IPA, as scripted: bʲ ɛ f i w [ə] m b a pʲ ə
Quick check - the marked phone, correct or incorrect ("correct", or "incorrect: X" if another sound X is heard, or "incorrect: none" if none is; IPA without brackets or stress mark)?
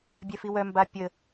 incorrect: œ